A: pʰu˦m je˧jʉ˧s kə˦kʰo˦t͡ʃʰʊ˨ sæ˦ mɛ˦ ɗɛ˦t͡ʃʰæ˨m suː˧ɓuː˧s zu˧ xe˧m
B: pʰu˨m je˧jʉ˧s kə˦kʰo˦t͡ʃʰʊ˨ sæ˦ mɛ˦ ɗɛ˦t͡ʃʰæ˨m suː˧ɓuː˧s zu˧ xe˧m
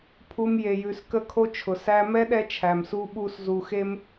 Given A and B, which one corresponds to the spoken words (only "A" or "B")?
A